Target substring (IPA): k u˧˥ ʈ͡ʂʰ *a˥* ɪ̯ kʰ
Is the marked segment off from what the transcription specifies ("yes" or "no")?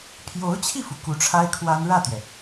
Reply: no